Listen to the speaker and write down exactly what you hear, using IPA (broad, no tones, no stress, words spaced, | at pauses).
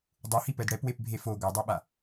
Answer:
dˤuhipɛd ɽɛpwepbʱe fo ɡʷʌdˤaɓa